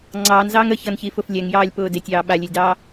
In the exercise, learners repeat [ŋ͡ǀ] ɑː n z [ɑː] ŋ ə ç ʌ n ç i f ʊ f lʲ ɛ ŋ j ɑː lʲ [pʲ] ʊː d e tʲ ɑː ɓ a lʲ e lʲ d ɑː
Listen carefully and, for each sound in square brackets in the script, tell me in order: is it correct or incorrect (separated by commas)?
correct, correct, incorrect